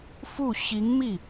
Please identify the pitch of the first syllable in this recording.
falling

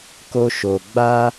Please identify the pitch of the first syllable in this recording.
high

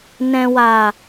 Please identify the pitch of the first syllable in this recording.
low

